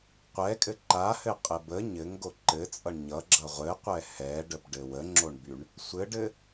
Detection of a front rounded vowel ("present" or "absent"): present